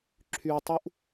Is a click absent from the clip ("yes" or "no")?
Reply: no